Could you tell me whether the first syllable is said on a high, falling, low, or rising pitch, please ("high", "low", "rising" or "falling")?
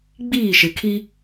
falling